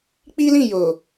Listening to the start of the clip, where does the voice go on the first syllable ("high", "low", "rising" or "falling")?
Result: high